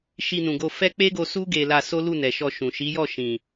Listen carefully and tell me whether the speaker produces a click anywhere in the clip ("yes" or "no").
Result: no